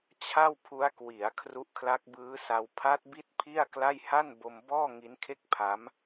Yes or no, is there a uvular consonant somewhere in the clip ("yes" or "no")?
no